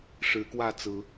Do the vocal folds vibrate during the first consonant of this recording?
no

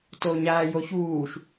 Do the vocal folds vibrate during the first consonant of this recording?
no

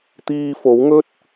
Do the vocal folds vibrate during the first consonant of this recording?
no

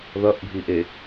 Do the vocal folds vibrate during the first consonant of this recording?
yes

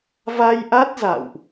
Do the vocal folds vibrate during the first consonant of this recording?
yes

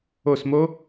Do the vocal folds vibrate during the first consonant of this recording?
no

